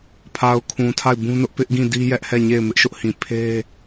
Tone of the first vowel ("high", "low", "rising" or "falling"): low